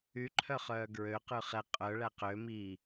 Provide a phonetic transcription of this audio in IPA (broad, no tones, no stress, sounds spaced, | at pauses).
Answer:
y ǃʰ œ χ œː ɡ ɹ ø q ʉ χ ɛ qʼ œ ɭ æ q ø m i